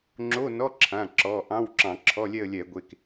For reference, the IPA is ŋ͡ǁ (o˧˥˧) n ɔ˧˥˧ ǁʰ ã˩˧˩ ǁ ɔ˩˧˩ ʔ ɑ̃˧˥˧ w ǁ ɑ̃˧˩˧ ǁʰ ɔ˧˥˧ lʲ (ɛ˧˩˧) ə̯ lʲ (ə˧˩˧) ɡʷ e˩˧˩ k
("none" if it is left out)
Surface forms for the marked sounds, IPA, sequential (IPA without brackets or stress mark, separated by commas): o˧˥˧, ɛ˥˧, ɛ˧˩˧